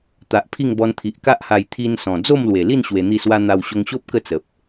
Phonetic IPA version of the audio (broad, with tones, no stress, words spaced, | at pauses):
t̪a˨ʔpʰi˥˧ŋbɔ˧n t̪ʰi˨ʔka˦ʔha˧j t̪ʰi˧nsɔ̃˨˩ d͡zo˥˧mlwe˨˩li˥˧n ɕwe˧n̪i˥˧swa˦ n̪a˧wɕo˧ŋɕo˦p̚ kə˥˧t͡sə˨p̚